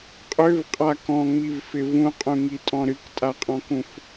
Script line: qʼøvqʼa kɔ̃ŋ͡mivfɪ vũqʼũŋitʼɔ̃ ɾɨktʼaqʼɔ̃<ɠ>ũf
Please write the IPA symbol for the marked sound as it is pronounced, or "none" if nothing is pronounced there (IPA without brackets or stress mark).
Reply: k